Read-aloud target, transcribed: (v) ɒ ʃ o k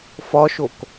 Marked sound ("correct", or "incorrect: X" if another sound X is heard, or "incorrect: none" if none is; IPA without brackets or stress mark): incorrect: f